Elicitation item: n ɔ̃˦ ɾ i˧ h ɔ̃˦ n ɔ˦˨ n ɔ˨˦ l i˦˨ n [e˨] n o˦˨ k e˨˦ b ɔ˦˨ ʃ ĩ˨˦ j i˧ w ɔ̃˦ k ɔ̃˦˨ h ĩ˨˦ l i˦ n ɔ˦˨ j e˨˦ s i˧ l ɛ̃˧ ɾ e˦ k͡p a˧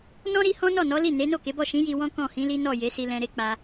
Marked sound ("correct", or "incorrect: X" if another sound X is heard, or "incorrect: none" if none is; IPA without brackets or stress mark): incorrect: e˨˦